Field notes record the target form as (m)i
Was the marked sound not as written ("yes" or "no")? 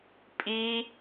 yes